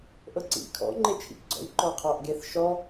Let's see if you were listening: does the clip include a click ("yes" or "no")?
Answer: yes